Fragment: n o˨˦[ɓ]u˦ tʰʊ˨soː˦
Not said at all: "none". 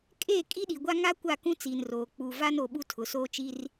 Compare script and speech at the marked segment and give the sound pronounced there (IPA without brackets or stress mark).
ɓ